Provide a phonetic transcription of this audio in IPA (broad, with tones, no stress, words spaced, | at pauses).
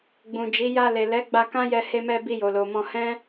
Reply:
ɡ͡bũ˨d͡ʒi˨˦ ja˧le˨ lɛ˨˦ ɡ͡ba˧kã˦jɛ˧ he˧mɛ˧ bi˧jo˨lo˨mɔ̃˧ hɛ̃˦